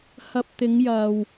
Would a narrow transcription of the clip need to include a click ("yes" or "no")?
no